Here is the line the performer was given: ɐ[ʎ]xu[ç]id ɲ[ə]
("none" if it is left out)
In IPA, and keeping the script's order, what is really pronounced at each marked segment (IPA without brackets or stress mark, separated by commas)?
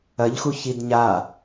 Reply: ʎ, ç, a